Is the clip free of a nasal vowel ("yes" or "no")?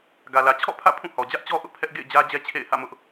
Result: no